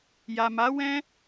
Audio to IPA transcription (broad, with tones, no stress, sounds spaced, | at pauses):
j a˨ m a˨˦ w ɛ̃˦